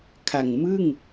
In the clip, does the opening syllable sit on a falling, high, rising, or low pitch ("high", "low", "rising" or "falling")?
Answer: low